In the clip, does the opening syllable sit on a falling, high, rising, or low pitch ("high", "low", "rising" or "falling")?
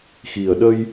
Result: low